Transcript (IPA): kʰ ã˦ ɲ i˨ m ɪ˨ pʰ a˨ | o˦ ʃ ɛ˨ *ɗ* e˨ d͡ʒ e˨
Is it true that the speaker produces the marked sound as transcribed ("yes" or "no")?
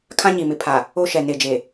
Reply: no